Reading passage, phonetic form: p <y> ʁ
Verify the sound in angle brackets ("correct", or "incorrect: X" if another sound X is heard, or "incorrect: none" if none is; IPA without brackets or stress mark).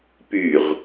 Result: correct